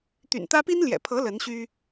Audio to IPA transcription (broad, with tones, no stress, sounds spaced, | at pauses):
t̪ y̰˨˩ n t̪ ä˥ p i˥ n l j ɛ̰˨˩ pʰ ɤ˧˥ l ə˧˥ n ɕ y˥